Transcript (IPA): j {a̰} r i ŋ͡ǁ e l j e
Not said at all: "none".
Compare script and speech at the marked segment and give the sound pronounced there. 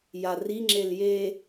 a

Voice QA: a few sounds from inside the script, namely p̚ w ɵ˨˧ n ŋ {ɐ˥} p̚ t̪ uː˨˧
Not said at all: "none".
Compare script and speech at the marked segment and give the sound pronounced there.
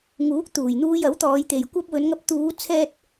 ɐ˧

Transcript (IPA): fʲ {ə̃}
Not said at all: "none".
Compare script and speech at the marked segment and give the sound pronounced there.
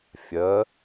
ə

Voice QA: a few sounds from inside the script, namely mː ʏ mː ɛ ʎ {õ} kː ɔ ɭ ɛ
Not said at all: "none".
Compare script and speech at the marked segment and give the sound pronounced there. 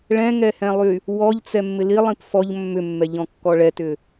ɔ̃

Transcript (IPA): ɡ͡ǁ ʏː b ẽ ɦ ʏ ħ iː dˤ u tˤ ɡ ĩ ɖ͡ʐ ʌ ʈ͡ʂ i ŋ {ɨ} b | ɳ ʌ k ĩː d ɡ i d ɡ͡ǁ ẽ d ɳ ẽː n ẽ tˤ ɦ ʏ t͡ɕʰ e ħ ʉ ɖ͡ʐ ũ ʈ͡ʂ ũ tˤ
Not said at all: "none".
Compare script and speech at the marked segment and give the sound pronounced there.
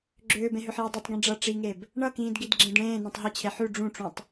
e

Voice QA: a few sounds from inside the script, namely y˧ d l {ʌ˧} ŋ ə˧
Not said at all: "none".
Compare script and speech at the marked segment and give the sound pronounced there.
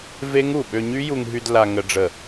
a˧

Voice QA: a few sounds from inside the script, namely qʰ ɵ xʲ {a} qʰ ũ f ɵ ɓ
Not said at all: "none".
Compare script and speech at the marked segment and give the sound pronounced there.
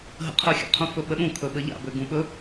a̰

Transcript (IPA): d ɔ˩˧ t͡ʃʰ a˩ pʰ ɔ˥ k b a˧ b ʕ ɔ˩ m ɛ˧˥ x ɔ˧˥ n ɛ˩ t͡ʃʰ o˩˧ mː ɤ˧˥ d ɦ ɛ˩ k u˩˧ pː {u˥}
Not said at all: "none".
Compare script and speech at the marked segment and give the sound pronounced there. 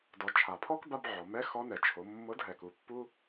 u˥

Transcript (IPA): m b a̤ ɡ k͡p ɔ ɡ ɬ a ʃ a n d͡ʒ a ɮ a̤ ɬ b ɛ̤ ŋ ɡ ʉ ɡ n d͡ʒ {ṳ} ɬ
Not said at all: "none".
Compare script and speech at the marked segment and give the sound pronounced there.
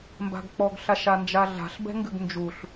u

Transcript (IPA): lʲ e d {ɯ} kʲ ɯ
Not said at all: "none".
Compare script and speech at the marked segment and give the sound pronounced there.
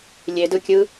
ɯ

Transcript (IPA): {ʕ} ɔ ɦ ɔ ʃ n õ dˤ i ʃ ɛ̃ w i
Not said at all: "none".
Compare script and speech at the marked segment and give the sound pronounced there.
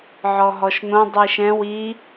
ʕ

